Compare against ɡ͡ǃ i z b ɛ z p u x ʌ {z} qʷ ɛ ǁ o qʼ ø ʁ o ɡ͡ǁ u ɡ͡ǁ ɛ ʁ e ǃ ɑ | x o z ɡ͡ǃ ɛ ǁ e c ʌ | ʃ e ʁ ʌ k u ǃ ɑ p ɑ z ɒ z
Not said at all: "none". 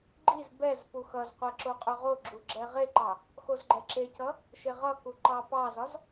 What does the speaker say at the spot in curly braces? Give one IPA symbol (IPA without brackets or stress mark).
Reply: z